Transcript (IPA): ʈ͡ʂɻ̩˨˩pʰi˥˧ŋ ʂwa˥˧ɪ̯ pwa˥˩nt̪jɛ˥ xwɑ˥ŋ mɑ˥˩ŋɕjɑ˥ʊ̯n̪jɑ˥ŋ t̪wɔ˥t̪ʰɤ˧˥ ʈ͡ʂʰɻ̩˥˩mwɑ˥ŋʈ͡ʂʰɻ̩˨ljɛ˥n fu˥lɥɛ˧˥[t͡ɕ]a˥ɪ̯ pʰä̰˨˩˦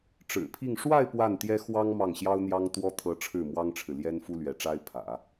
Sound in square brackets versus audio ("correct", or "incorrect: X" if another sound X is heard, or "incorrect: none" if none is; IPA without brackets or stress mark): incorrect: ʈ͡ʂ